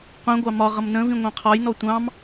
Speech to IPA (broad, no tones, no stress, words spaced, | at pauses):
qʷĩɡʷɑ mɒʁʌm nə̃vĩ ŋʷɑ̃qʰɒjnɔ tʷɑ̃m